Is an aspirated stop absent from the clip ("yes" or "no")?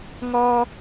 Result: yes